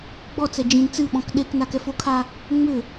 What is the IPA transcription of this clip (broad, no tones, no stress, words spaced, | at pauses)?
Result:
ɡ͡bɔt͡sɛ d͡ʒĩn t͡sɨɓɔ̃k ɗeknakɛf okʰa | ŋ͡mʏ